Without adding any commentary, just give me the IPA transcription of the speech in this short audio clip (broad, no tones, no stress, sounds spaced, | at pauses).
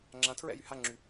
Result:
ŋ͡ǁ ã tʰ ɹ ɛ̰ j y h a ŋ͡ǁ y